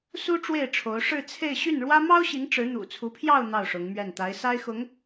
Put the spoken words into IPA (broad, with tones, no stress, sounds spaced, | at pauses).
s u˥ ʈ͡ʂ w e˥˩ ɪ̯ ʈ͡ʂʰ o˧˥ ʊ̯ ʂ ɻ̩˥˧ t͡sʰ e˥˧ ɪ̯ ɕ y˥˩ n ɻ w ä˥ m ɑ˥ ʊ̯ ɕ i˧˥ ŋ ʈ͡ʂ ɻ̩˧˥ n̪ ṵ˨˩ t͡sʰ u˧˥ pʰ j ɑ˥˧ ʊ̯ n̪ ɑ˥˩ ʊ̯ ʂ ʊ˧˥ ŋ m ɥ ɛ˥˩ n t̪ a˧˥ ɪ̯ s a˥ ɪ̯ x ʊ˧˥ ŋ